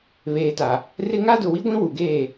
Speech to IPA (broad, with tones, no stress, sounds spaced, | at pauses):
β eː˨ t a˨ | r ɪ˦ ŋ a˦ d ʊ˨ w i˦ ɡʷ ĩ˦ w u˨ ɡ eː˦˨